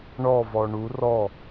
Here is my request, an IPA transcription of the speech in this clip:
ɳɔ vɔɳu rɔ

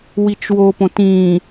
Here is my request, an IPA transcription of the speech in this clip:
wit͡ʃwopõt ĩ

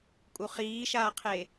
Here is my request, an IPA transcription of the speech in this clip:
kʼuχiːʃaːqʰe

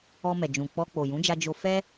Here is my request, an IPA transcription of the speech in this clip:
ɔ˧mɛ˨d͡ʒũ˨ k͡pɔ˧ k͡po˨jũ˨˦d͡ʒa˧ d͡ʒo˧ fɛ˦

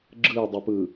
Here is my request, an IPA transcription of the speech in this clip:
ɡ͡ǁɯdˤupɯ

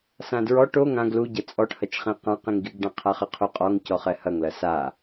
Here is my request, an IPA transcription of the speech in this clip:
sãdɹɔʈ o ŋãɡ luɟɐ t͡sʼɔʈhɐt͡ʃχĩ qãqĩŋɡiɡɖã qʰaχɨqʰuqʼɔŋ cɔχɛhɐŋlɐ sa

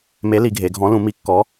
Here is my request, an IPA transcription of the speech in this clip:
me˨˥li˩˧ɡʱe˩˧ɡʱɔ̃˨˥ lũ˩˧ mi˨˥kːɔ˨˥

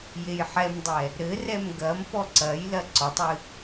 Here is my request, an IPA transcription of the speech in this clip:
jejħɛmdˤɛ | ɾɘrɛm ɡɐm pɔǀɐjlɐ ǀɔtˤɨ

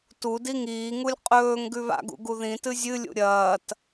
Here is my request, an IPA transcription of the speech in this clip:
tu diŋiːŋulʲ qʼɵːŋ ɡʉβa̰ɡṵ ɡuðĩtɨ zʲɨlʲṵ ɾʲɐːt

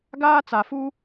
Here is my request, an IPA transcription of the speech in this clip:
ɡaː˦t͡sa˨ fuː˦

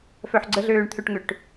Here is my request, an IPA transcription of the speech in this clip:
fœħɡ͡ǀəɮøːɳ t̪ʰʏʈŋʏʈ

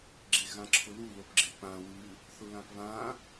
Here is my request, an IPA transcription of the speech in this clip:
ɡ͡ǁeɣãǁʰʊlu lopɡ͡ǁek͡pã wʉ | θʊlãpβã

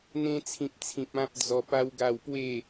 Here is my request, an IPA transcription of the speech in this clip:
n̪ẽ˧t͡sʰĩ˨p̚t͡sʰĩ˨p̚ ã˦p̚d͡zɔ˧pa˦wɡa˥˧w pwe˥˧

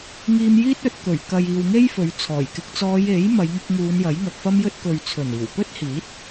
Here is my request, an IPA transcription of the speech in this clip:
ŋiː˧mjiː˥t̚ɵ˧t̚ kɵ˨˩ɥkɐ˨jiː˨wŋe˥j fɵ˨˧ɥt͡sʰɔː˨˩jkɪ˧k̚ t͡sɔː˨˧je˨˥j mɐ˨˧jŋʊ˧k̚ŋuː˨˧n jɐ˨˥jŋɐ˨k̚fɐ˥mjɵ˥t̚ kɵ˨ɥt͡sʰɵ˨˩n iː˨˩wpɵ˥t̚hiː˨˥t̚

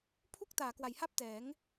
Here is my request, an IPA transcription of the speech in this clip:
pʰu˥˩k̚ taː˩˦kwa˩˦jha˥˩p̚ tɛː˩˦ŋ

